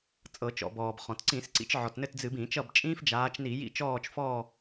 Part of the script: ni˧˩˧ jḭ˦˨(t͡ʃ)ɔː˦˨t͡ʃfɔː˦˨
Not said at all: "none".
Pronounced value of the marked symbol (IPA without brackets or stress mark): t͡ʃ